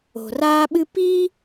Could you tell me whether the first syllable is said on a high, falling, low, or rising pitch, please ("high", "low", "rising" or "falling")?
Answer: low